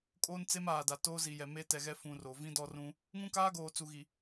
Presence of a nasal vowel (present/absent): present